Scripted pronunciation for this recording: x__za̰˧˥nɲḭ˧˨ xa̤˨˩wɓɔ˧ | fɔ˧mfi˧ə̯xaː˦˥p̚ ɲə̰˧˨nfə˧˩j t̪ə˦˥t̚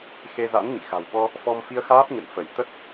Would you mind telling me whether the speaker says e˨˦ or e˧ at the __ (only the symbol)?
e˧